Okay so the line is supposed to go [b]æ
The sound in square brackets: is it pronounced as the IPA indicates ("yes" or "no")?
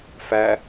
no